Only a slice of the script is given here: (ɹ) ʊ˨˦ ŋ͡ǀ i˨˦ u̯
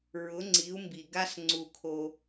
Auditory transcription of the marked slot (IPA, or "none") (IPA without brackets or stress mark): ɹ